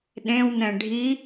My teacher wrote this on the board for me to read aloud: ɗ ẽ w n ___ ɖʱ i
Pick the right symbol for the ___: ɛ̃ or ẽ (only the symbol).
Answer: ɛ̃